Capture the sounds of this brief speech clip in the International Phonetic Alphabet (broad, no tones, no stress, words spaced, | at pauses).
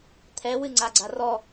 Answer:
t̪ʰɛwɨŋ͡ǀaɡ͡ǀa rɔ